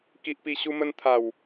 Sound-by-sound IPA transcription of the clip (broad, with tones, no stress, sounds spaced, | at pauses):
k i˨ ʔ p i˨˩ ɕ u˧ m ə˧ n t̪ʰ a˨˩ w